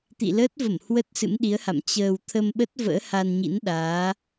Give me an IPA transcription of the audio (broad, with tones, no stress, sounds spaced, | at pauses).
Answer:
t̪ ḭ˧˨ l əː˦˥ t̚ v ə˧˩ m h w ə˦˥ t̚ s ɨ̰˧˥ m ɗ i˨˦ ə̯ h a̰˧˨ m t͡ɕ əː˨˩ w t̪ʰ ə˧ m ɓ ə˦˥ t̚ v ə̰ː˧˥ h a˧ n ɲ ḭ˧˥ n ɗ aː˨˦